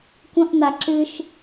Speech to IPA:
kʷ ə̃ ʔ n a ǁ ɨ ʃ

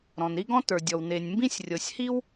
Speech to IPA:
ɾ ɔ̃˩ n ɾ i˥ ɡ ɔ̃˥ t ə˞˩ dʲ ɔ˩ w n e˩ nʲ m b ĩ˥ sʲ rʲ ɤ˩ sʲ h i˥ w

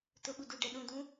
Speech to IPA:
t ʊ ɓ u d u ɖ ɛ ɗ ũ d ũ

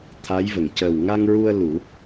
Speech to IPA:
t̪ʰ a˧˥ j v ə˨˩ ŋ c ə˨˩ w ŋ a˧ ŋ ɹ u˧ ə̯ l u˨˩˦

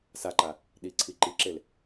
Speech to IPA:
s a ǃ a | ɗ i ǀʰ i ǃ i ǁ e l

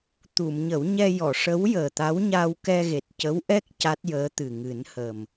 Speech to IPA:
t̪ u˨˩˨ m ɲ ə˨˩˦ w ɲ ɛ˧ j ɔ˨˩˨ ʂ ə˧˥ w j əː˨˩ t̪ a˧˥ w ɲ a˧ w k ɛ˧ ɣ e˨˩ t̚ c ə˧˥ w ʔ ɛ˦˥ k̚ c a˦˥ t̚ j əː˧˥ t̪ ɨ˨˩ ŋ ɨ˨˩˦ n h əː˨˩ m

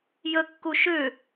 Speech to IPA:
j ə kː u ʃ ʏ

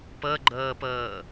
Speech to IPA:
p ɤ ɡ͡ǃ ɤː p ɤː

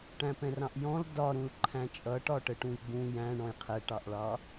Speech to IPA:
ʈ æ̃ p ɛ̃ r ɑ̃ ʔ j ɔ̃ l d ɒ ɾ ũ l ǃʰ æ̃ t͡ʃʼ ʌ ʈ ɒ ʈ ə ʈ ũ j ɡ͡b ũ j æ̃ ɳ ɔ̃ j qʰ ɛ ʈ ɑ ʔ ɭ ɑ

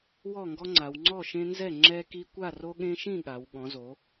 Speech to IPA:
w ɔ˥˨ ŋ ɡ ɔ˦ ŋ͡ǀ a˩˧ w ŋ͡ǀ ɔ˥˨ ʃ ẽ˦ n z ɛ˥˨ ŋ͡ǁ ɛ˦ k i˦ kʷ a˥˨ r o˦ ɠ ẽ˦ ʃ ĩ˥˨ ɠ a˩˧ w ɠ ɔ̃˩˧ z o˩˧

